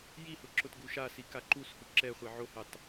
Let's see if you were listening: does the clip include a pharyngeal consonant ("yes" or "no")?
yes